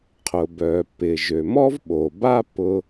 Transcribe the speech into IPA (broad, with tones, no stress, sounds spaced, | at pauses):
qʰ ʊ˩ b œ˩ p ɪ˩ ʒ ø˩ m ɔ˥ v ɓ o˩ b a˥ p ʊ˧